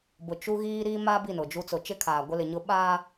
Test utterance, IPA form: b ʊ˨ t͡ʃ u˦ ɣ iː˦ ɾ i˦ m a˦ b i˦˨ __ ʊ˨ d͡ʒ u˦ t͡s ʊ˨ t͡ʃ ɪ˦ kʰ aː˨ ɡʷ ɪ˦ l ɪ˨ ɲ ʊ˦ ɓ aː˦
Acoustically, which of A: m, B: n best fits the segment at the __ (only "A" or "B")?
B